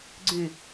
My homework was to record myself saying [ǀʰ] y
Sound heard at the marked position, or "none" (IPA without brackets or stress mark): ɡ͡ǀ